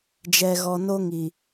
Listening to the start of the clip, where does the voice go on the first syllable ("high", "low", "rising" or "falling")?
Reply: low